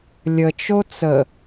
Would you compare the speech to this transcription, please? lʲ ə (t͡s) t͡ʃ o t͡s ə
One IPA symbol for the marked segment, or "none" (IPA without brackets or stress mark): none